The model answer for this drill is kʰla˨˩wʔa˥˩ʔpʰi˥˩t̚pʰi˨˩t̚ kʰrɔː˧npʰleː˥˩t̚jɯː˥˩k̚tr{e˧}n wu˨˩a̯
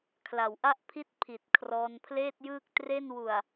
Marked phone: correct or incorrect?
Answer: incorrect